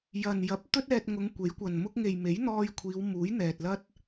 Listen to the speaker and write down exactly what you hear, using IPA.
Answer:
j ɐ˨ n j ɐ˨˥ p̚ t̪ ɵ˥ t̚ ɛː˧ t̚ ŋ ʊ˨˧ ŋ kʷ e˨˥ j kʷ ɐ˨ n m ʊ˥ k̚ ŋ e˨ j m e˨˥ j n̪ ɔː˧ j kʷʰ iː˨˧ w m uː˨˥ j n̪ ɛː˨ t̚ l ɐ˥ t̚

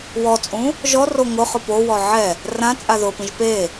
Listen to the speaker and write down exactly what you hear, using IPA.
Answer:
w ɔ t͡sʼ ũ | ʒ ɔ r o ŋ ʊ χ ʊ p o w ɔ ʕ ɛ | r ã t͡sʼ a ð ʊ p ĩ ʒ p e

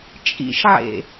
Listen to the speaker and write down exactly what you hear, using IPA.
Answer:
t͡ʃʼ ḭ ʃ ʕ ḛ

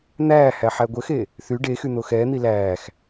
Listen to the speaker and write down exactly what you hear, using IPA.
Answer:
n̪ æː h æ ħ æ ɡʷ ə x e | θ y ɖ e x y n̪ o x ɛː n̪ i l æː x

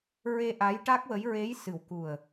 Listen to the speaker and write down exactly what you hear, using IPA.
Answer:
ɹ e˧ ʔ a˧˥ j ʈ a˦˥ k̚ w ə˧˥ j ɹ e˧˥ j s ɨ˨˩ w k u˨˩ ə̯

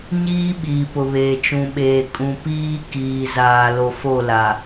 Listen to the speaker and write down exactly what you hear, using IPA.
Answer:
ɲ iː˦ ɓ iː˨ p ʊ˨ β eː˨ t͡ʃ ũ˨ ɓ eː˨ kʼ ũ˨ p iː˦ k iː˨ z aː˨ l o˨ f o˦˨ l a˨

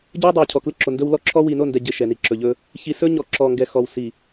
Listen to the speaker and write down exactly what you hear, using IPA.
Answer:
ɟ ɵ˦ w dˤ o˨ w cʰ ɔ˨ k l ɪ˦ ǁ o˨ n d ɵ˦ w l ɔ˦ ǁʰ ɔ˦ w i˨ n o˦˨ n d ɛ˨ ɟ ɪ˨ ʃ ɛ˨ n i˨ ǁ ɵ˨ ʎ ɵ˦ | ç i˨ s ɵ˦ ɲ ɔ˨ ǁ ɔ˨ ŋ ɡ ɛ˨ x ɔ˨ w s i˨

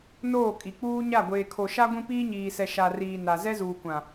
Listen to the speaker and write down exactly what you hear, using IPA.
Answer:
n oː˦˨ kʼ i˨ k͡p uː˦ ɲ a˦˨ ɡʷ eː˨ kʰ o˨ ʃ a˦ ɡʷ ĩ˦ p iː˦ ɲ iː˨ s ɛ˨ ʃ a˨ r iː˨ n a˨ z ɛ˦ z uː˨ kʷ ã˨

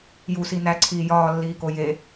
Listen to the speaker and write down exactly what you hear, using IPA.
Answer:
j u s i n æ ǀʰ iː j ɒː lː iː k o j e

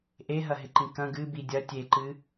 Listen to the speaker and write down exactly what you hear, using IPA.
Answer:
ʔ e ɦ ɐ ɦ ɪ ǃ ĩ k ɐ̃ ɡ ɨ b i dʲ ɐ tʲ e ǃ ɨ

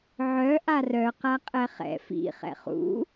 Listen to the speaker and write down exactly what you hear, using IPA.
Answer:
ʕ œ ʔ a r œ q a qʼ ɛ χ ɛ̰ f ḭ χ ɛ̰ χ ṵ

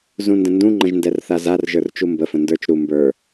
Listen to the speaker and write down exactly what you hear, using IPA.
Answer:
z ũ n d ə̃ n d ũ ŋ͡ǃ ə̃ ʒ n d ɛ r θ a z a r ʒ ə˞ r t͡ʃ u m b ə f ə̃ n d ə˞ t͡ʃ ɾ u m b ə˞

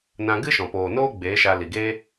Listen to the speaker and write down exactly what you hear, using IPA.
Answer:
n ã˧ ɡ ɨ˦ ʃ ɔ̃˨ p oː˨ n oː˦ ɡ͡b eː˨˦ ʃ a˧ l i˨ ɡ e˦

